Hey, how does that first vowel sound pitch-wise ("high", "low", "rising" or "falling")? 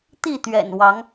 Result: falling